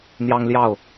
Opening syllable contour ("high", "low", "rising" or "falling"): high